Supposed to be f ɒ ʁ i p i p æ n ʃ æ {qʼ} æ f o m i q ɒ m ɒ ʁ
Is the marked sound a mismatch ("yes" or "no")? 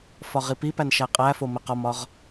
no